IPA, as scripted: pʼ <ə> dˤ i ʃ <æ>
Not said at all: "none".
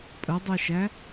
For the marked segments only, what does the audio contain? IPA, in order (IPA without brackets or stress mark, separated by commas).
ə, æ